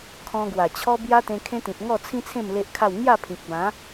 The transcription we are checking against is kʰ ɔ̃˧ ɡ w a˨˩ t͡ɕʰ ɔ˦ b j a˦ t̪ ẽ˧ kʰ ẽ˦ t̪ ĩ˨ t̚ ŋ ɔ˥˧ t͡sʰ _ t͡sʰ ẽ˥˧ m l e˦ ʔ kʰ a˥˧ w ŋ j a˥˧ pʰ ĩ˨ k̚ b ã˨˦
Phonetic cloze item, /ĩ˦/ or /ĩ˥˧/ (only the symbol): ĩ˦